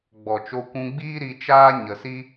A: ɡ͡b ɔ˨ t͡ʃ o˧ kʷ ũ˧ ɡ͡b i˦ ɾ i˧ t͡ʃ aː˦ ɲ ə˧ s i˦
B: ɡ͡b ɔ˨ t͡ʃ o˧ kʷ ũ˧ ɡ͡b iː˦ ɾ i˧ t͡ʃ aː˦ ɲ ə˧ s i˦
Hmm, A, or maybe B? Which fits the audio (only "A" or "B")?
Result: B